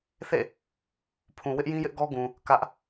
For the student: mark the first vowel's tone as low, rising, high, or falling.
falling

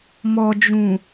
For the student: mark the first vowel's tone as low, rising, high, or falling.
low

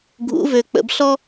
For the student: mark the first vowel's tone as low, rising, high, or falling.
rising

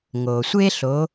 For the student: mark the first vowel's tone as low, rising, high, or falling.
low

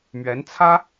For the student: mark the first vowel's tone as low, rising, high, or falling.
rising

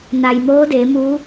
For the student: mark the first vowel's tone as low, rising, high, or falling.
low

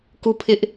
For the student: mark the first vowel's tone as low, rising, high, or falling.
falling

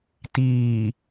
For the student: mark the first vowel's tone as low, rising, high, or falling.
low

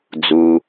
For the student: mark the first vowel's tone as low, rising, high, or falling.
low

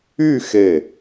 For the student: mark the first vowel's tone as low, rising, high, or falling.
falling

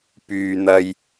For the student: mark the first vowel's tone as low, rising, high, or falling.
low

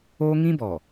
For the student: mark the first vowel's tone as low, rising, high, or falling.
high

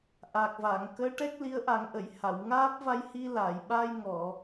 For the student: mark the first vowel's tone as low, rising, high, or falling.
low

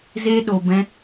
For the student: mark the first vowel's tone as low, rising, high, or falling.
high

